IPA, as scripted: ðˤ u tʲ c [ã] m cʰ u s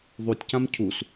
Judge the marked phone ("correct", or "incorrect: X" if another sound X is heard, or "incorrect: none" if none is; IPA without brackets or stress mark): correct